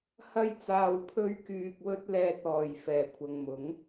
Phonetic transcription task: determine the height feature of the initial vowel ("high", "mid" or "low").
low